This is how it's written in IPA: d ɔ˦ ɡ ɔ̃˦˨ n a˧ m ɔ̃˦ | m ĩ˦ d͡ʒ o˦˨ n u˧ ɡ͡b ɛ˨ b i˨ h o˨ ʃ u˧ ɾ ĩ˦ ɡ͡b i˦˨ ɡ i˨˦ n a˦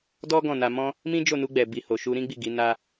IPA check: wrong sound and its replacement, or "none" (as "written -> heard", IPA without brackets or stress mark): none